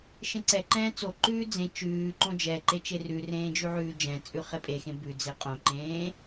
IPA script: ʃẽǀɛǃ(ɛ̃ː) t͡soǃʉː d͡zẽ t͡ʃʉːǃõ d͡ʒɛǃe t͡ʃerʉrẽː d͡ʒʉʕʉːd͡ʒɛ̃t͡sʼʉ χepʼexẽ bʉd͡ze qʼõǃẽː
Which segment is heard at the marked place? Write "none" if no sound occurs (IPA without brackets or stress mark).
ɛ̃ː